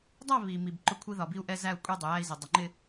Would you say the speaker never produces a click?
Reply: no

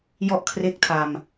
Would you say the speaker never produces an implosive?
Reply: yes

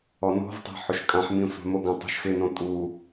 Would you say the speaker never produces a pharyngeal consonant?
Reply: no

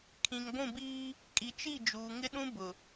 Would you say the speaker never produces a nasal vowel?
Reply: no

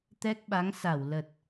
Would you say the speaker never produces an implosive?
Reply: no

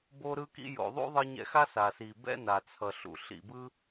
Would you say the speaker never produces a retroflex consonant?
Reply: yes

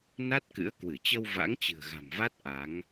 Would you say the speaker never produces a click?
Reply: yes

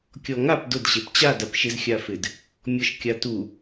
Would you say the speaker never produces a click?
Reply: yes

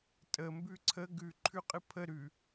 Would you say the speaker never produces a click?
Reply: no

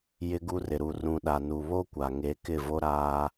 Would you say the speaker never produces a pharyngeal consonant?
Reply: yes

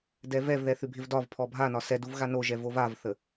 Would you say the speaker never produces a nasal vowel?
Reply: yes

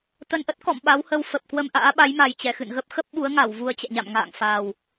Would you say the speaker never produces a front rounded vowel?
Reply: yes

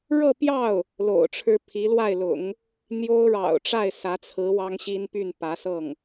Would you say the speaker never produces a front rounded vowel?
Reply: no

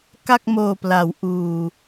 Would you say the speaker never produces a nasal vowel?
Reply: yes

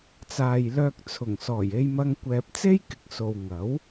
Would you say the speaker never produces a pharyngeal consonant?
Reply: yes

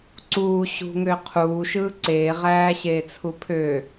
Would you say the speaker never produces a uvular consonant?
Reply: no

